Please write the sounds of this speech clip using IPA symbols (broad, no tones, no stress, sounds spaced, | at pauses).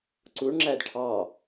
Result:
ǀ u ɳ ŋ͡ǁ æ d ʈʰ ɑ